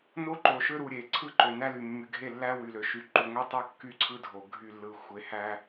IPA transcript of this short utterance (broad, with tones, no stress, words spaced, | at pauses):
no˦ǃo˨ʃø˦ɾu˨ ɾʲe˨ ǀʰɯ˦ǃø˨næ˦ly˨ mːy˨ɡʱe˦˨lːæ˦ wy˨lø˨ʃy˨ ǃu˨ŋʷe˦tˤo˦ kːy˦ ǀʰɯ˦dʱo˨ ɡʱy˦˨lːɯ˨ xʷe˨hæ˦